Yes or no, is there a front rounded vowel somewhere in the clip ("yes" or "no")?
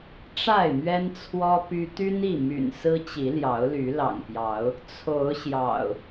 yes